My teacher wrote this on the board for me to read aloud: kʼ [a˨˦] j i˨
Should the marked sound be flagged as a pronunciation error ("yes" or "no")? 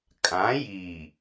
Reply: yes